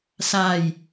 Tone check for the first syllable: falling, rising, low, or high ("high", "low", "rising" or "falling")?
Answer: falling